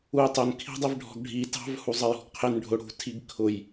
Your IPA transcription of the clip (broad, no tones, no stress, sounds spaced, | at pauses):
u j tˤ ʊ n kʰ i̤ dˤ i v ɖʱ ɔ̤ ɡ ɖʱ i t ɑ̤ v h u zˤ ə j ɔ̤ ɡ qʰ ɪ n ɖʱ ʊ ɽ ṳ tʰ i ɡ kʰ ʊ j